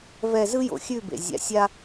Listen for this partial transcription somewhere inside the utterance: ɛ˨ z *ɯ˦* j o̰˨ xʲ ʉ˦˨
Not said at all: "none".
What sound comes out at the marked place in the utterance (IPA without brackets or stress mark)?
ɯ˦